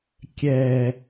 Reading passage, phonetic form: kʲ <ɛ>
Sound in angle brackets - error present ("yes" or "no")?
no